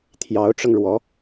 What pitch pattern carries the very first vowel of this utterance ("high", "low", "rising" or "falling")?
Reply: rising